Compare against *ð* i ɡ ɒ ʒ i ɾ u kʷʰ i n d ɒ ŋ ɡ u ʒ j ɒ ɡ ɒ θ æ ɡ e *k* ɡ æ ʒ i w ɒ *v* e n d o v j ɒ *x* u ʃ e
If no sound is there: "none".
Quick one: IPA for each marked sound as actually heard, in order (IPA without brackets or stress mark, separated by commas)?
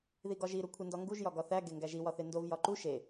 ð, ŋ, θ, ǃ